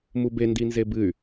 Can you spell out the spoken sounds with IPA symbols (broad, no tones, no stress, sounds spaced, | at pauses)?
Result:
m u b e n d i n z e b ɨ y̯